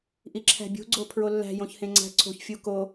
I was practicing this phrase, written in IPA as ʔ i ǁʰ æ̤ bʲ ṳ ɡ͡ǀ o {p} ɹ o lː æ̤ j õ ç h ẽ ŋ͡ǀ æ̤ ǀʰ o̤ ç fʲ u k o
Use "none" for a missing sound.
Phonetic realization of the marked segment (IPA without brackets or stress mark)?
pʰ